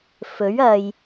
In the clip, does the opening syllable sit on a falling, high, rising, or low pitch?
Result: rising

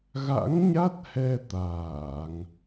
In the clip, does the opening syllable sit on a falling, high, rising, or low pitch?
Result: rising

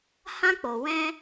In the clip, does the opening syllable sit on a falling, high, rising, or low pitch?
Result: high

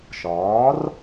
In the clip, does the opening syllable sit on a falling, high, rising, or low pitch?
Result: rising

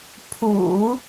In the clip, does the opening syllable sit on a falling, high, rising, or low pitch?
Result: low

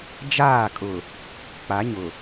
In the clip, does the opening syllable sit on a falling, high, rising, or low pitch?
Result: falling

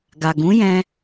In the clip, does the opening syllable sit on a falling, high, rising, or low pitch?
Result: low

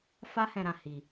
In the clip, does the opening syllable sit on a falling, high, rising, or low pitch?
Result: high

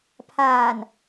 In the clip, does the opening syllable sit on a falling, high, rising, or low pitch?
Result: low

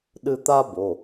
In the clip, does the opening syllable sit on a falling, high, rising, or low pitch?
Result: high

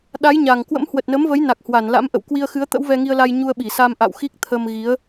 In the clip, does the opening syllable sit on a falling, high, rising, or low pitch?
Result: rising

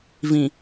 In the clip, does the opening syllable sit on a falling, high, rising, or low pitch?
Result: low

